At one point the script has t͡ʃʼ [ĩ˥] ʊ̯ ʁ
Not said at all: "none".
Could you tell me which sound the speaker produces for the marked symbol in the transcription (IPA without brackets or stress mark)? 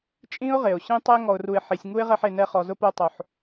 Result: ĩ˥